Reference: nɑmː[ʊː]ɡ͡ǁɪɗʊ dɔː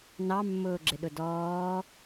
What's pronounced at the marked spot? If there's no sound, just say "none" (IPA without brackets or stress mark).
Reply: ʊː